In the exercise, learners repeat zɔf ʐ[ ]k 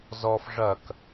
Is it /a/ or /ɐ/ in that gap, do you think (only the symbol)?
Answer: ɐ